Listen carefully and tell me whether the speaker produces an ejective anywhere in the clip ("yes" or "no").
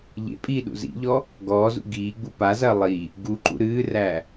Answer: yes